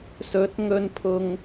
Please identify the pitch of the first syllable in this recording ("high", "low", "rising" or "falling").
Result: rising